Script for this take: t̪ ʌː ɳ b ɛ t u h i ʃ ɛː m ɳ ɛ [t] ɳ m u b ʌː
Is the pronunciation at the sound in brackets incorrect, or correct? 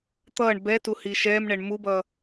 incorrect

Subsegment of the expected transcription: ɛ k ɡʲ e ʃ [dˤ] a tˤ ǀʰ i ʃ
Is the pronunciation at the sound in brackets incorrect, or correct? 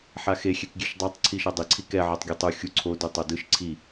correct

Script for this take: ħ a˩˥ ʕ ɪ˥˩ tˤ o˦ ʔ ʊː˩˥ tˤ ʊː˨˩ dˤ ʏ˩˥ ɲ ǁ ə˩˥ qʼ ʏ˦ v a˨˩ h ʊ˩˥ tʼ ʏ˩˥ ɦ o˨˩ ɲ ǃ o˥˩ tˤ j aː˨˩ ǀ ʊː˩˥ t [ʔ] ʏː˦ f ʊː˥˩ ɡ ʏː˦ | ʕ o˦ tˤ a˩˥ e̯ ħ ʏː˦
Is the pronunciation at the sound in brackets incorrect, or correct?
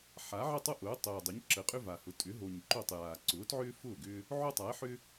incorrect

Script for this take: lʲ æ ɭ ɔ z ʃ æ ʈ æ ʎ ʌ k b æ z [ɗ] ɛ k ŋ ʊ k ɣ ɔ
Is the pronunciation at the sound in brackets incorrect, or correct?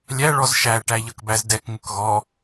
incorrect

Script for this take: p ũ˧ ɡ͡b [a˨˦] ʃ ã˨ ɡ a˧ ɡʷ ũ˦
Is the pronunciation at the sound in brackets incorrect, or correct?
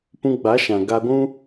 correct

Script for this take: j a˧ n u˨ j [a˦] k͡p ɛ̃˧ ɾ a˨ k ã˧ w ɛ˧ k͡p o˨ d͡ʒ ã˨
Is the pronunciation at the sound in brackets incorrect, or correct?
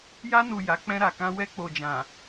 incorrect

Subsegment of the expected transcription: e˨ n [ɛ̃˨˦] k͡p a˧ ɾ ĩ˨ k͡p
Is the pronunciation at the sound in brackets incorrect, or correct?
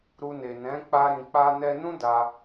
correct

